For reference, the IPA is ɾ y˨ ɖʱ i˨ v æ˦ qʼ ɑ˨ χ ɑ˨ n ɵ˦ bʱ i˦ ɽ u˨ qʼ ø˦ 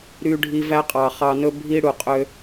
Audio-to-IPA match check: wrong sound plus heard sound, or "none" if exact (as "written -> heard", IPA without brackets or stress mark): none